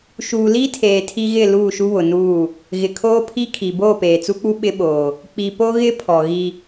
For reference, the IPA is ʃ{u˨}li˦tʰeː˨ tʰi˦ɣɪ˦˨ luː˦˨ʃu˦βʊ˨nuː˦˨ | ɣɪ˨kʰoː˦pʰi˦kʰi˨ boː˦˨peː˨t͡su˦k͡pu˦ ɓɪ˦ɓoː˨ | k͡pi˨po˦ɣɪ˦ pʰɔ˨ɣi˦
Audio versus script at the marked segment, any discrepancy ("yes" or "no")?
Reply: yes